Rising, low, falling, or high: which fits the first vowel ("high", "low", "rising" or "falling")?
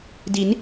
rising